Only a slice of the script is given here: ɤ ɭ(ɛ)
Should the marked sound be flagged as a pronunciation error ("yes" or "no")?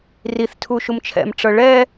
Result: no